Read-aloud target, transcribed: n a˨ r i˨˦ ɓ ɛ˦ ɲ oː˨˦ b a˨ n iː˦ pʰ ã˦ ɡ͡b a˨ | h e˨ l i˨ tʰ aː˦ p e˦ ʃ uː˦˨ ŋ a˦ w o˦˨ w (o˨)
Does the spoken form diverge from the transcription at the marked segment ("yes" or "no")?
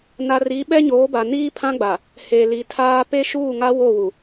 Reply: yes